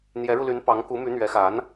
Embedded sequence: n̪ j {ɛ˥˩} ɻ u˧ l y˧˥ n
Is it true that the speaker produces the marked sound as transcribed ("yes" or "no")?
no